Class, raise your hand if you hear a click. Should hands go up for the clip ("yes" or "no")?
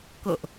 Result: no